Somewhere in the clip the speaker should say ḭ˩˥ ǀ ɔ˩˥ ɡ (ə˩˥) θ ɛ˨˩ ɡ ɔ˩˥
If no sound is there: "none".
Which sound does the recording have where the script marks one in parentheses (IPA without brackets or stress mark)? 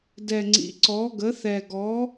ə˩˥